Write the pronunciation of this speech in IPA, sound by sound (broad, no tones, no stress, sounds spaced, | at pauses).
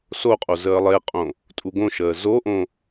s o qʼ o z əː lˠ e qʼ õ | tʼ u ɡ õ ʃ əː z o ʔ õ